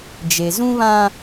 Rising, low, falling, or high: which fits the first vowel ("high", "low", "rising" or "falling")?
low